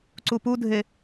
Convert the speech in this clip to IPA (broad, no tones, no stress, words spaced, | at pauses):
ǀupudʱe